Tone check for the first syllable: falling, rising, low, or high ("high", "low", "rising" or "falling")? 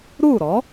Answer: falling